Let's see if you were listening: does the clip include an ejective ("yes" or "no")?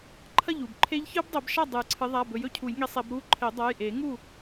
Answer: no